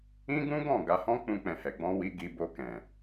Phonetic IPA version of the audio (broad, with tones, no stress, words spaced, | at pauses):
ĩ˦ɡũ˦ɡɔ̃˦˨ ɡa˧hɔ̃˦k͡pũ˧ k͡pɛ̃˨hɛ˨ɡ͡bɔ̃˧wi˧ ɡi˧bo˧kɛ̃˨